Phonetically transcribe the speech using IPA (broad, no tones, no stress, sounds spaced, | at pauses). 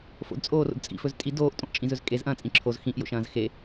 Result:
f o̰ d t͡sʼ oː r o̰ d t͡sʼ ḭ f ɵ z tʼ i d oː ʔ tʼ õ ʔ t͡ʃʼ ĩ z ɵ z kʼ e z ʔ ɐ̃ː t͡sʼ ĩ ǁʰ o z x ĩ ʔ j o̰ ʃ ɐ̃ː z x e